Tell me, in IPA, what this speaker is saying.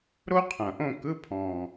ɾ o˥ qʰ ɐ̃˨˩ ʔ õ˥˧ k ɯ˧˥˧ pʰ ɔ̃˨˩

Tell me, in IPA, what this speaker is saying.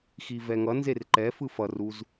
x i v ɛ ŋ ʌ n z e r ǃ ɛ f ɯ f ʌ r u z

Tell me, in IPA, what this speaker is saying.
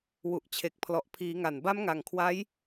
w u˨˩ ʔ t͡ɕʰ e˨˩ k̚ pʰ l ɔ˨˩ ʔ pʰ iː˩˦ ŋ a˨˩ n b a˦˥ m ŋ a˨˩ ŋ kʰ w a˦˥ j

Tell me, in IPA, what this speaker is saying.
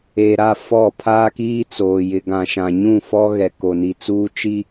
e˨ ɾ a˦˨ f ɔ˦˨ pʰ aː˦ k iː˦ t͡s oː˨ j ɪ˨ ɡ ã˨ ʃ ã˨ ɲ ũ˦˨ f ɔ˦ ɣ ɛ˨ k o˨ n i˨ t͡s uː˦ t͡ʃ i˦

